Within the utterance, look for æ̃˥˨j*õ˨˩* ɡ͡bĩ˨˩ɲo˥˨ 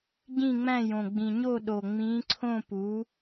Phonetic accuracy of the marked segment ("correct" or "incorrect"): correct